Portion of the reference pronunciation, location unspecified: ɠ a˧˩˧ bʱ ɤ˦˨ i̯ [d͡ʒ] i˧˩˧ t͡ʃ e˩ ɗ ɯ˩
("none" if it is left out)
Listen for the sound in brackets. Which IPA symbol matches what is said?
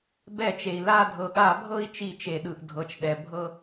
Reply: t͡ʃ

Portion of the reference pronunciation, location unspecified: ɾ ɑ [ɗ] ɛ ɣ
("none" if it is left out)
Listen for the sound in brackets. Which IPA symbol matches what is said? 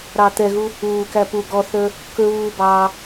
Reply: t̪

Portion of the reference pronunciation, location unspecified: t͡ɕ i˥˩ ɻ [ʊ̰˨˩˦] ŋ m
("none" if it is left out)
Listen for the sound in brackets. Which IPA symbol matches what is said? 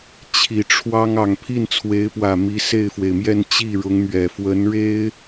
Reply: ʊ˧˥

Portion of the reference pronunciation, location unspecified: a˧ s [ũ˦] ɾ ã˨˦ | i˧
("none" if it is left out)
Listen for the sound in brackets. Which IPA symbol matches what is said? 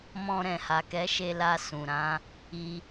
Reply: ũ˨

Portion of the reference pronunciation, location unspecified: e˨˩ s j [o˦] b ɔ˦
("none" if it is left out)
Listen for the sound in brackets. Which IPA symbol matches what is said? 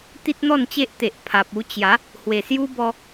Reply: u˦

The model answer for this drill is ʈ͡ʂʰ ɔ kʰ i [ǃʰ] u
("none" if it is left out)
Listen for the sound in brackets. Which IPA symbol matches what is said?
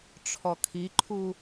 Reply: ǃʰ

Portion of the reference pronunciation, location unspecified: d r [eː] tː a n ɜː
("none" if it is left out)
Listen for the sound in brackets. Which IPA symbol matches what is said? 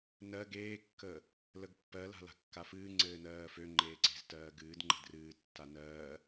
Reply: ɨː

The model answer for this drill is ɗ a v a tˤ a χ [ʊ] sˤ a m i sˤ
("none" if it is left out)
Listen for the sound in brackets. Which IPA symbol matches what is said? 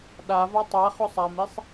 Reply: ʊ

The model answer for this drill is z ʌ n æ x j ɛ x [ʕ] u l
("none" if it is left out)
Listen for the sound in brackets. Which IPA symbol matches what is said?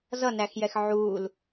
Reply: ʕ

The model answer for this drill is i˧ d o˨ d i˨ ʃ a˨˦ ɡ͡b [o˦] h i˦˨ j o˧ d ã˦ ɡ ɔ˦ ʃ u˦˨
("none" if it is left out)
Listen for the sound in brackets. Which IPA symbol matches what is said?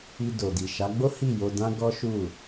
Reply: o˦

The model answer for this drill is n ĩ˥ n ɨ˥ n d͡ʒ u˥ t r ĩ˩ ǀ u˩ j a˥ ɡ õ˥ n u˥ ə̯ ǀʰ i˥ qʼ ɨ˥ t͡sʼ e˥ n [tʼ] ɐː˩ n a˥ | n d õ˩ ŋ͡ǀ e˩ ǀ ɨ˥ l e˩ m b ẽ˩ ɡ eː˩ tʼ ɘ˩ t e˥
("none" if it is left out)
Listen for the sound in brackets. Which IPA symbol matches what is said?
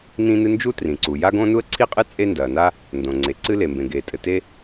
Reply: d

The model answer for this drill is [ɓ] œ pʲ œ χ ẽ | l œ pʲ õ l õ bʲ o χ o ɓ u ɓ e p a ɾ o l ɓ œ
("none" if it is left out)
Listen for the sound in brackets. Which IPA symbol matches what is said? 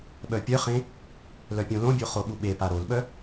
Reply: ɓ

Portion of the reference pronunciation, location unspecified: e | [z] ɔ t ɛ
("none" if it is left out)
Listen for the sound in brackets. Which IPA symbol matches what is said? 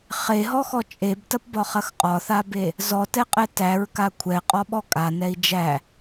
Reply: z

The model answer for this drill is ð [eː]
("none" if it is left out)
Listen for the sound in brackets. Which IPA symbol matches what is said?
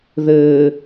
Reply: ɘː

